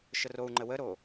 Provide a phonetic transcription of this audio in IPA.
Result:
ʃ ə r o u̯ ŋ͡ǃ ə w ə ɾ o

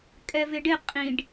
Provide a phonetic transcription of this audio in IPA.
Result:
kʼ ɛ v ɪ ɖ ɪ qʼ ĩ ɖ

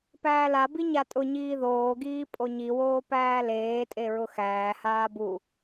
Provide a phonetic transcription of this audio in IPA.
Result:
p æː l a b i ɲ a tʼ ʊ ɲ iː ð oː ɡ iː pʼ o ɲ i w oː p æː l eː tʼ e ɹ ʊ x æː h aː b u

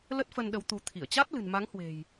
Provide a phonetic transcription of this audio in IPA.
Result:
l ə˦˥ t̚ f ə˧ n ɗ ə˨˦ w t̪ u˨˦ t̪ʰ i˧˩ ə̯ t͡ɕ a˦˥ t̚ l ɨ̤˨˩ n m a˨˦ ŋ h w e̤˨˩ j

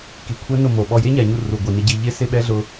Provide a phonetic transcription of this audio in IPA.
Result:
k i˨ kʷʰ ɛ˦ n ʊ˦˨ m o˨ ɓ ɔ˨ j e˦ ɲ a˨ ɲ u˨ r u˨ ɡʷ i˨ n ɪ˦ ɟ i˦ ʎ ɪ˦ s ɪ˦ ɓ ɛ˦ ɮ ʊ˦

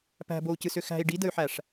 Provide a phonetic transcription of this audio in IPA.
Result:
p æ̤ b o u̯ c ɨ s ʏ x æ̤ i̯ ɖ i d ə y̯ ħ æ ʂ

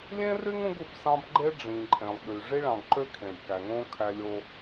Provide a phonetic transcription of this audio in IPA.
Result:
lʲ ẽ˦ r y˦ ŋ ũ˦ ɡ u˨ b s ɑ̃˦ b ɡ͡ǃ e˦ ɖ͡ʐ ĩ˨ ǃʼ ẽ˨ lˠ ɠ y˨ ʐ i˦ ɭ ɑ̃˨ ɡ ǃ ø˦ kʰ ẽ˨ b k æ˨ ŋ õ˦ kʰ æ˦ lʲ o˦

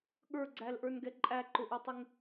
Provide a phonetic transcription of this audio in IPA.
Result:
ɠ ə˞ ɡ͡ǀ æ l ʔ ə˞ n ɡ ɛ ǃʼ æ ǃ ʊ ʔ ɛ tˤ ɪ ŋ

